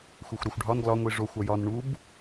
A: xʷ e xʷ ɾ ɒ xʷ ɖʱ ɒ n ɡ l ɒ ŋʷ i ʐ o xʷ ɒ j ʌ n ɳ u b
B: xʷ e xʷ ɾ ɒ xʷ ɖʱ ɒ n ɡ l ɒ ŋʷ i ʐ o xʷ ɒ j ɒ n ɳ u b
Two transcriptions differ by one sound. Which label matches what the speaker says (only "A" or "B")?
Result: B